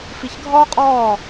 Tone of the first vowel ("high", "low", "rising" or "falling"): low